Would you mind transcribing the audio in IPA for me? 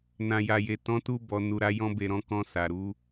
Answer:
n ã˨ j a˨ j e˨ t ɔ̃˨˦ t u˧ b ɔ˨ n u˨ ɾ a˨˦ j ɔ̃˧ b e˨ ɾ ɔ̃˧ k ɔ̃˧ s a˨ ɾ u˨˦

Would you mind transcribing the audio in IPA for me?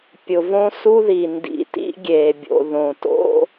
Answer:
pʲ ʊ˨ v õ˦ s u˦ ð i˨ n d ḭ˨ t ḭ˦ ɡʲ eː˨ bʲ o̰˨ ð õ˨ t o̰˦

